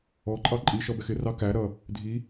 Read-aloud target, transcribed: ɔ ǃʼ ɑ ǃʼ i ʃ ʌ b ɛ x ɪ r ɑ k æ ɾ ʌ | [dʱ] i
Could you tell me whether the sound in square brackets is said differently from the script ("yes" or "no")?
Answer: no